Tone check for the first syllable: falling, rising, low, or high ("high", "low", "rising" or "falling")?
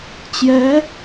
rising